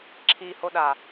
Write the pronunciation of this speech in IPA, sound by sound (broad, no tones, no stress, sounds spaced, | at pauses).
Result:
ǁʰ i h o ɗ a